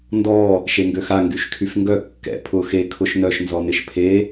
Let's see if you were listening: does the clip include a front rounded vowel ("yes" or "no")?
yes